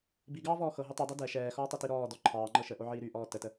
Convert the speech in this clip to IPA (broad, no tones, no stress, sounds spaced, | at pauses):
b i ɡ ɑː v ɔː x ɤ ɦ ɵ tˤ i dˤ ɛ d ɛ ʃ ɛː x ɔː tˤ o t i ɾ ɔː d ɔ ǃʰ ɑː ŋ͡ǃ ɤ ʃ ə ʔ o ʕ iː ɾ y ʔ ɔː t ə t ə